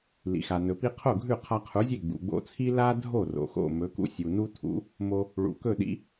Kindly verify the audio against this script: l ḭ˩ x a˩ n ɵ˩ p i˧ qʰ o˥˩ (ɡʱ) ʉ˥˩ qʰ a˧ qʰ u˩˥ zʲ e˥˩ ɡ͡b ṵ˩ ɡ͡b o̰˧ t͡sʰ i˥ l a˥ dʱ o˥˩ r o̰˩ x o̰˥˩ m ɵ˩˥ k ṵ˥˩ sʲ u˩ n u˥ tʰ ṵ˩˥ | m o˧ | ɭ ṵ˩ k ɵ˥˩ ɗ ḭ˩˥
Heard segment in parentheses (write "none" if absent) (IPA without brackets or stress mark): ɡʱ